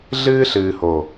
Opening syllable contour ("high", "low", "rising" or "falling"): high